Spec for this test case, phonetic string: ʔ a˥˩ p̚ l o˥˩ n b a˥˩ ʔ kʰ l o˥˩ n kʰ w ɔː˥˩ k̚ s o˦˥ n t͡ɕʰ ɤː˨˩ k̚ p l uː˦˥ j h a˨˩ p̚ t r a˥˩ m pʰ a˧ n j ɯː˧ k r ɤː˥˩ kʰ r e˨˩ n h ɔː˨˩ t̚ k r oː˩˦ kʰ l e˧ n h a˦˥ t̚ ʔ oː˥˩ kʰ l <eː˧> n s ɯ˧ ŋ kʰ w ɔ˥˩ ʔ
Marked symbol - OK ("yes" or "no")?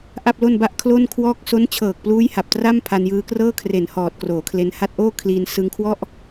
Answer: no